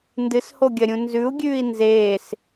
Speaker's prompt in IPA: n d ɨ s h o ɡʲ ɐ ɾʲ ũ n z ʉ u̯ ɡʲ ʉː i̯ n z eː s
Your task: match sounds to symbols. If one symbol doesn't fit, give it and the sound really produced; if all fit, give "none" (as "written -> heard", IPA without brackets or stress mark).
none